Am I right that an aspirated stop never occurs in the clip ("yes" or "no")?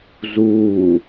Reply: yes